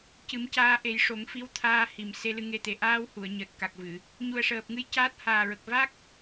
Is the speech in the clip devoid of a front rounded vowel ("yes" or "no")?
yes